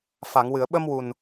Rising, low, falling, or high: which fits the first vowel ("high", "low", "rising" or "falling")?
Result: low